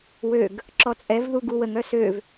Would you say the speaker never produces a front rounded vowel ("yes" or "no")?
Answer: no